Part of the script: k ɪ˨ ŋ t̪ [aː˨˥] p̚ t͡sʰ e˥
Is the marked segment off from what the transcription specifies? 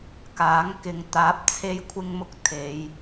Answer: no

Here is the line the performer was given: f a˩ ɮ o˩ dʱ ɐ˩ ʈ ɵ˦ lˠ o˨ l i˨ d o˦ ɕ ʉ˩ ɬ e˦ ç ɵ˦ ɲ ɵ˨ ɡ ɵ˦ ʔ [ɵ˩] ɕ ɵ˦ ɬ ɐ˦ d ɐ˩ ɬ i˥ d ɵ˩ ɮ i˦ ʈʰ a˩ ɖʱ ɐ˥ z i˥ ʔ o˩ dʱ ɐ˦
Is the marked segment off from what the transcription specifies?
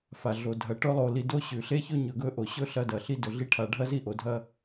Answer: yes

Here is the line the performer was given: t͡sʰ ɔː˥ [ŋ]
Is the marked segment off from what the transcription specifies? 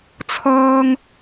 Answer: no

